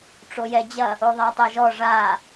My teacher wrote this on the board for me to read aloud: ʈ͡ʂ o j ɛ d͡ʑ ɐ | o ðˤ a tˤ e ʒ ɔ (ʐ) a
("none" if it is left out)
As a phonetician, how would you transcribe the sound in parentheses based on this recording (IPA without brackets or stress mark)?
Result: ʐ